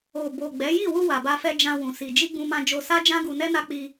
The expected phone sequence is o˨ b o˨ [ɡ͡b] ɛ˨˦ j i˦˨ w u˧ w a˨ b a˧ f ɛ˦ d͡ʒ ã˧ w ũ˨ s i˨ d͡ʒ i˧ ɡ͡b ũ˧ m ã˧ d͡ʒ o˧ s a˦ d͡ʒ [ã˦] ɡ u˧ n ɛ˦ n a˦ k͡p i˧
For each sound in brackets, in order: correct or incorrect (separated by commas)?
correct, correct